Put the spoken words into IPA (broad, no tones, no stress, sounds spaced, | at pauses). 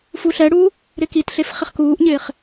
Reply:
f u ɬ ɛ ɽ uː | ɾ ɪ k i t ɬ e f χ ɪ χ k uː ʔ ɲ ɪː χ